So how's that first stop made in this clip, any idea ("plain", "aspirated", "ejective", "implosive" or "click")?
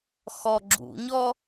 click